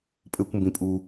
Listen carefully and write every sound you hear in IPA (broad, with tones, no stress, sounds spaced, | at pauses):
pʼ ɘː˨ kʷ m b ĩ˩ pʼ uː˩